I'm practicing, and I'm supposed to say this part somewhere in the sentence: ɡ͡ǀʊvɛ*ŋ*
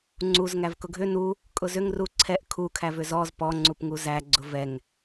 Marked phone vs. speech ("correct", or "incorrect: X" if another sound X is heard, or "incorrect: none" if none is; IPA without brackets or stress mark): correct